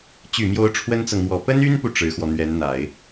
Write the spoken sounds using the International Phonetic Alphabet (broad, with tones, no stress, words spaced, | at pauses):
t͡ɕy˨˩mjo˧˥ʊ̯ ʈ͡ʂʰwə˥nt͡sɤ˨ŋmwɔ˨˩ pə˥ny˥npu˨ ʈ͡ʂɻ̩˧˥xwɔ˧n̪ɥɛ˧˥nn̪a˨˩˦ɪ̯